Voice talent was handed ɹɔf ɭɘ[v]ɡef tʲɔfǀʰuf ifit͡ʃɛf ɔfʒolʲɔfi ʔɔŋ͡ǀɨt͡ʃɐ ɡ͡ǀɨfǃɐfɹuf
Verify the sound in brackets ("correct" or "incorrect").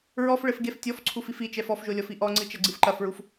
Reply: incorrect